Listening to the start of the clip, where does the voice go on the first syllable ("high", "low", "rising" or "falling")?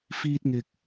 high